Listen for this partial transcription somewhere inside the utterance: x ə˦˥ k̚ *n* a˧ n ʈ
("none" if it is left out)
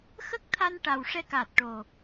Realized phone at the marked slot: t̪ʰ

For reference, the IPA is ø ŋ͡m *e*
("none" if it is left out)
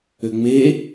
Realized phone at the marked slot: e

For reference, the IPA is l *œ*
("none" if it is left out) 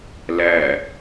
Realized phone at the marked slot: æ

